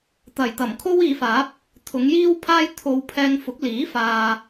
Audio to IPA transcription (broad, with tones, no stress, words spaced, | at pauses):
t̪ɐ˨˩jt̪ɐ˨˩m kʰo˥wiː˨˧faː˨˥p̚ | t̪ʰʊ˨˧ŋ jiː˥wpʰaː˥j t̪ʰo˧w pʰɛː˧ŋfʊ˨˥k̚ liː˨˥faː˨